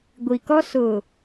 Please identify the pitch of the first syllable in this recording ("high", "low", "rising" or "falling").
low